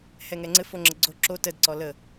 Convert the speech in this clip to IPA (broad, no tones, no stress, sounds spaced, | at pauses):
h ɛ ŋ ɛ ŋ͡ǀ ɘ f o ŋ͡ǁ ə ɡ͡ǀ o ǁ o t ə d ǀ ɔ l ə